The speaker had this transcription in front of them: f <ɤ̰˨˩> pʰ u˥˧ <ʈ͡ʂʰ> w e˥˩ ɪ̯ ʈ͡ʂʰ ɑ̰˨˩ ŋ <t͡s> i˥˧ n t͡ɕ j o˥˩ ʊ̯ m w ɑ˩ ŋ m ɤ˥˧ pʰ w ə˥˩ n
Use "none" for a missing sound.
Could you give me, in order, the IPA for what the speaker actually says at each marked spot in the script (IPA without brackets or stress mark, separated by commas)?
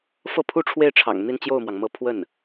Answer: ɤ˥˧, ʈ͡ʂʰ, n̪